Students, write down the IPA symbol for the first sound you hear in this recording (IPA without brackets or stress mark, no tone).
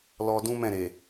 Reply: l